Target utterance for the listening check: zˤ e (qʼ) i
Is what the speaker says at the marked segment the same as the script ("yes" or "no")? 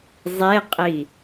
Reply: yes